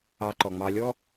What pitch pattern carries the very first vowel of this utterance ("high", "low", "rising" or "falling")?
low